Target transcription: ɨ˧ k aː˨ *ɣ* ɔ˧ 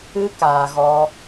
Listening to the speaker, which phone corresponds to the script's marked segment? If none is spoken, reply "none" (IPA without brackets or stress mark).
ɣ